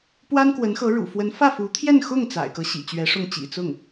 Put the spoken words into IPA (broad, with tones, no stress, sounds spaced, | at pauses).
p w a˥ n k w ə˧˥ n x ɤ˧˥ ɻ ṵ˨˩ f w ə˧˥ n f ä˥˩ f u˧˥ t̪ʰ j ɛ˥˧ n x ʊ˥˩ ŋ t͡s a̰˨˩ ɪ̯ k ɤ˦ ɕ ḭ˨˩ t͡ɕ ɥ ɛ˧˥ ʂ ʊ˥˩ ŋ t͡ɕ ḭ˨˩ t͡s ʊ˥˩ ŋ